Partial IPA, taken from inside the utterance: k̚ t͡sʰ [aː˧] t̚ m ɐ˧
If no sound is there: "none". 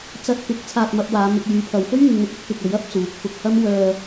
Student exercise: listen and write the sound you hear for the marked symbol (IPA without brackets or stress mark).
aː˧